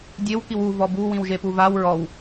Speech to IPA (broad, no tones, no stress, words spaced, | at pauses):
dʲewkiw uvɔ buwĩwʒepu vaw ɹɔw